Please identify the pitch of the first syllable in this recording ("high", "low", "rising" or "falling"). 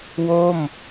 falling